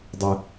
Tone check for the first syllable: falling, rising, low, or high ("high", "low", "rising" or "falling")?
low